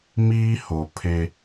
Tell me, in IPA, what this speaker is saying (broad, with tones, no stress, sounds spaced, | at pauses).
m iː˦ h o˨ pʰ e˦